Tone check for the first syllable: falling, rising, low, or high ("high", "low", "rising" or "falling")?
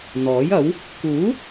rising